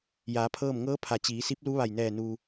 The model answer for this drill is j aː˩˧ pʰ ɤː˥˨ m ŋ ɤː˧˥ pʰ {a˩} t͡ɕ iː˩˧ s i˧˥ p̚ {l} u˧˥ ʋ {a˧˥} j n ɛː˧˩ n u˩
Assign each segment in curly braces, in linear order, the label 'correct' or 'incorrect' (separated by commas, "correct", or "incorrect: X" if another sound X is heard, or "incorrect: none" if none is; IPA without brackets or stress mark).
correct, correct, incorrect: a˧˩